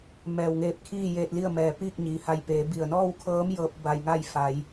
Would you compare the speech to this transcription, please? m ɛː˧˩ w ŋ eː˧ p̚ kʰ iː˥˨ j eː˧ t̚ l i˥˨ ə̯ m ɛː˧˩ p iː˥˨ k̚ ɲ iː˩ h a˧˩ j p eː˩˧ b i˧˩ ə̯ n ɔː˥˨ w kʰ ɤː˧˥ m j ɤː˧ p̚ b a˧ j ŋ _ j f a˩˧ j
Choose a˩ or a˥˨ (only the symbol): a˥˨